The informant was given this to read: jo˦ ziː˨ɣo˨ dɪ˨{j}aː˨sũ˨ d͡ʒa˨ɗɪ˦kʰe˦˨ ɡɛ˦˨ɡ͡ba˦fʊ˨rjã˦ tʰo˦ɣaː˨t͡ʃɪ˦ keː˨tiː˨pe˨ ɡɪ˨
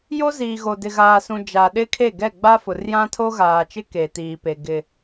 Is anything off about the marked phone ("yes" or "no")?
yes